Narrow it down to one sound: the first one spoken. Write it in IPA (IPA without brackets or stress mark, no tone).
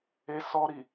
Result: e